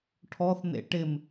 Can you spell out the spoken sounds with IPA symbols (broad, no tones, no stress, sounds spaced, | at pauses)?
ʈʰ ɔ θ n̪ ḛ ʈ ɪ m